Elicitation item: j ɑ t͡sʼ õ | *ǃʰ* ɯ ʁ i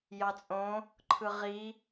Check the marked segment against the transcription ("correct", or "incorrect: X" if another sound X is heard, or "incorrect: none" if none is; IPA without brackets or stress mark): correct